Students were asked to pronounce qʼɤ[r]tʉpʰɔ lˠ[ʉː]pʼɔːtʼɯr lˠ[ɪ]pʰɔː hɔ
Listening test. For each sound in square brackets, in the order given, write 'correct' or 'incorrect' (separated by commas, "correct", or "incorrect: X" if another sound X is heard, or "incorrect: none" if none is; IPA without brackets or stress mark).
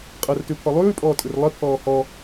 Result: correct, correct, correct